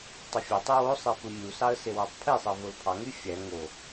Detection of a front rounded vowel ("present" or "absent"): present